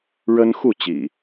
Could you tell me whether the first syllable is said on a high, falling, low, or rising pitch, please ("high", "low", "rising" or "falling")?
high